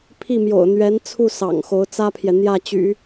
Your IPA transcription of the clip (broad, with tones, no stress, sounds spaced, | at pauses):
pʰ i˥˩ m j o̰˨˩ ʊ̯ n̪ ɥ ɛ˧˥ n t͡sʰ u˥˩ s ɑ̰˨˩ ŋ x o˧˥ ʊ̯ t͡s ä˥ pʰ j ɛ˨ n̪ j ä˥˩ t͡ɕ y̰˨˩˦